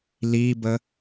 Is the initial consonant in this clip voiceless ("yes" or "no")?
no